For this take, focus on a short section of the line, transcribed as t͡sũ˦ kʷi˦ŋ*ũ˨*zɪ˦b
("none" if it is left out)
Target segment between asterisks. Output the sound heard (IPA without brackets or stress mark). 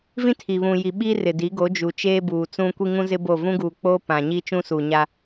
ũ˦